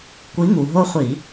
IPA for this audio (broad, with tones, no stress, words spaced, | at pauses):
kʷi˨˥ŋu˩ ɦo˦χʷi˧˩˧